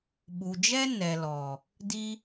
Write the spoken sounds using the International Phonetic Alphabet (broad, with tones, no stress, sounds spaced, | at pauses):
ɓ u˨ d͡ʒ ɛ˦ n ɛ˨ l ɔ˨ | d i˧